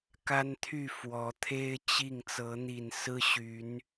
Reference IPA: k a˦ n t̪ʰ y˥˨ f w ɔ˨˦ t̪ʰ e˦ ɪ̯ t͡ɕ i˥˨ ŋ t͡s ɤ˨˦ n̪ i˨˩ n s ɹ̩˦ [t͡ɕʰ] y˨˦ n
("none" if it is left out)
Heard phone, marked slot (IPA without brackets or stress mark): ɕ